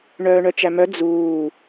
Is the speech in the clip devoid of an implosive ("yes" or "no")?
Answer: yes